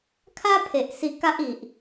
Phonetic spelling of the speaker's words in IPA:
kʰ a˦ pʰ e˨ ʔ s i˧ k a˦ ʔ i˨ ʔ

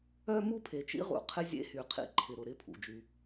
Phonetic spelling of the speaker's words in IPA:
œ˦ m u˦ pʰ e˨ t͡ʃ ḭ˦ ʁ ṵ˨ qʰ ɪ˦ zʲ ḛ˦ h y˨ qʰ ḭ˨ ǃʰ ɪ˨ ɾ ʊ˨ ɾ ɪ˦ pʰ ṵ˨ d͡ʒ y˦

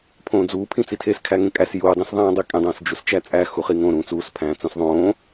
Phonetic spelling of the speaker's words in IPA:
pʰ õː d͡z uː pʰ ĩ t͡s i tʰ e s kʰ æ ŋ ẽ kʼ æ s j uː dˤ ĩ s ðˤ æ̃ː dˤ i kʼ ẽ dˤ õː s d͡ʒ u s t͡ʃ æ t͡sʼ æ x u χ i ŋ õ ɾ ũː t͡s uː s pʰ æ̃ː t͡s õ s ðˤ õː

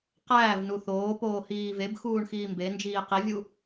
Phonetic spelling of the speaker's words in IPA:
q æː v n u θ oː p oː h iː v e b x uː ɳ x iː m b e n d͡ʒ iː q i vʲ u

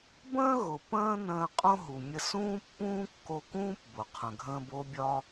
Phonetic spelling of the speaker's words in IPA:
b ə̃ː˥ ɣ ʊ˩ p ə̃ː˥ n ə̃ː˧ qʼ õ˥ ɦ u˩ mʲ ə˧ s ũː˥ pː ũː˥ kː o˧ k ũː˥ p b ʊ˩ qʰ ə̃˩ ɡʱ ə̃ː˧ b o˥ bʲ ɒ˥

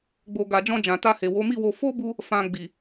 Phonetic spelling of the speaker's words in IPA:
ɡ͡b o˨ ɡ a˨ d͡ʒ ɔ̃˧ d͡ʒ ã˨ t a˧ h e˨ w o˨˦ m i˦˨ w o˧ f o˦ b u˧ | f ã˨ ɡ͡b i˨

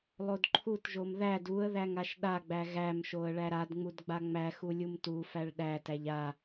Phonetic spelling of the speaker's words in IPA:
lˠ o d ǃʰ u t ʒ o m ð æ d u ə̯ ð æ ŋ a ʃ ɗ a ɡ͡b æ ɣ æ m ʃ o ə̯ ɭ æ ɾ a d ŋ͡m u d ɡ͡b a ŋ͡m æ x u lʲ u m t u f æ ɭ ɗ æ t æ ʎ a

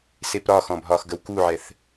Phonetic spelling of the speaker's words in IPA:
s e p ɾ ɒ x ɔ̃ bʱ ɒ x ɡ ə w k u ʕ ɛ θ

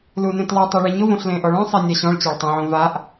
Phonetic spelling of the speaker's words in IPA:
l u n ẽ t lˠ u tˤ i ɭ i ɲ ʊ v õ ɬ l ẽ ʔ ɔ ɭ ɔ̃ sˤ i nʲ a ɕ ɔ̃ ɭ t͡ɕ a ɭ tˤ ũ ʕ õ v a ʔ

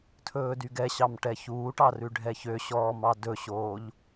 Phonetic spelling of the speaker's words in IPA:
tʰ ɵː d y ɡ ɛ ɕ ɑ m ʈ ɛ ç uː ʈ ɑ r ʉ ɖʱ ɛ ç ø ɕ ɔː m ɑ d ɵ ɕ oː ʎ

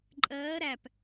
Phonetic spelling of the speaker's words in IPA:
ǃʼ ɜː ɾ æ p

